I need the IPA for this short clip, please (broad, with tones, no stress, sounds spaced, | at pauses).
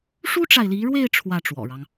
ʂ u˥ ʈ͡ʂ a˨ ɪ̯ l i˧˥ ɻ w e˥˧ ɪ̯ ʈ͡ʂʰ w ä˥˩ ʈ͡ʂ w ɔ̰˨˩ ɻ ɑ˦ ŋ